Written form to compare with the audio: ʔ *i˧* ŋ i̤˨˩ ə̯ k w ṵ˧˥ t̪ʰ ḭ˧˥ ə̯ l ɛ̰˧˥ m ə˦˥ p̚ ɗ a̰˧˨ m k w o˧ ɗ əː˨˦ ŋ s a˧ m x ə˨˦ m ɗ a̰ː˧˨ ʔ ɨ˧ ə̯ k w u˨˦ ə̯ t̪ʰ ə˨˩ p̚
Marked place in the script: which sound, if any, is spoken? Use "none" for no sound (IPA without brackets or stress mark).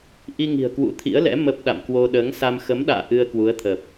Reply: i˧